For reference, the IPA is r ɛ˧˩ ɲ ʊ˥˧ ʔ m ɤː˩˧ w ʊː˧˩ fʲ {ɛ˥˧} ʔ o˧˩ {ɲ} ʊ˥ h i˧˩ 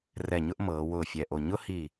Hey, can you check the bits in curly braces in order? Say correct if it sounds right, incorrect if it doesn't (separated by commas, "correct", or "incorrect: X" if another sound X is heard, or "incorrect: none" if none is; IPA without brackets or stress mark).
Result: incorrect: ɛ˧˩, correct